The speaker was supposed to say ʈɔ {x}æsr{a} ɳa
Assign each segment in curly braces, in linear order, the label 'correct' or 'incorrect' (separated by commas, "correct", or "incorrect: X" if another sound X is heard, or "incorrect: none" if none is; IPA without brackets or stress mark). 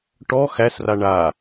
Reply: correct, correct